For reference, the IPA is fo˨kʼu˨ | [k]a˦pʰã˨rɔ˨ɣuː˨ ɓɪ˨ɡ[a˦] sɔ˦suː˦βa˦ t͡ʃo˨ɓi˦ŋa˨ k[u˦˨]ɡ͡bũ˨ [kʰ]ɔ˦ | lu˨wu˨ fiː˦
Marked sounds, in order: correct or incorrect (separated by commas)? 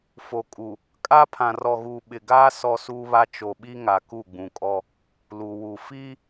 incorrect, incorrect, correct, incorrect